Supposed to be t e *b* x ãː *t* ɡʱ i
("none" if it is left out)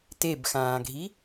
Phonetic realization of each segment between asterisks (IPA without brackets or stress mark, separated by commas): b, none